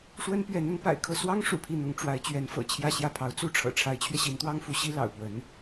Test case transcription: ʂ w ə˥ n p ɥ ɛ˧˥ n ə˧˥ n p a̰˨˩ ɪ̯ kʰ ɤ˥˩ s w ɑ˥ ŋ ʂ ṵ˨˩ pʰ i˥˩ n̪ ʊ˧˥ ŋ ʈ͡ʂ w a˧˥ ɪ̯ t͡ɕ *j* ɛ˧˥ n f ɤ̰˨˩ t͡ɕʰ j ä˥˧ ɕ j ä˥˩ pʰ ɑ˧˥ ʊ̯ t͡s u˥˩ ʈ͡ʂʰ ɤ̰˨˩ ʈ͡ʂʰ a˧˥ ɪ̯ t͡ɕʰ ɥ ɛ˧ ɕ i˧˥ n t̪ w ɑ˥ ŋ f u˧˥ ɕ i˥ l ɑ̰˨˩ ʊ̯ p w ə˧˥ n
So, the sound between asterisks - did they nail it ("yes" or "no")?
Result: no